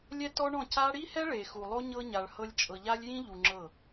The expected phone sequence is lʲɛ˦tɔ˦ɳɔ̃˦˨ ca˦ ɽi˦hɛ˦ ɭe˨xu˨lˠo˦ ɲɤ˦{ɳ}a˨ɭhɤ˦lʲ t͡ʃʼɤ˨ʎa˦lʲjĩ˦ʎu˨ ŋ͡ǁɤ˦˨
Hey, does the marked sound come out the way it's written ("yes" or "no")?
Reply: no